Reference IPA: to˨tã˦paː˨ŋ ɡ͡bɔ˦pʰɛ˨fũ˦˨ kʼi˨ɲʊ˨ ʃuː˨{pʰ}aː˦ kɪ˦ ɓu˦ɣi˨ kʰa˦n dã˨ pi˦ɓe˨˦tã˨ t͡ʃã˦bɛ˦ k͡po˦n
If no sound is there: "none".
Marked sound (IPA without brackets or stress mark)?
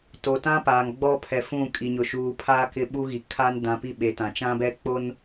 pʰ